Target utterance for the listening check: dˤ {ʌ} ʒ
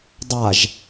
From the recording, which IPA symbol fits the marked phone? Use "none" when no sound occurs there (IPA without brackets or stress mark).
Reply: a